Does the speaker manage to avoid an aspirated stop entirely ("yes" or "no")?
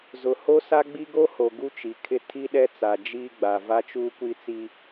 no